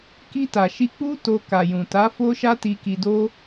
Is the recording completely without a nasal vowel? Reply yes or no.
no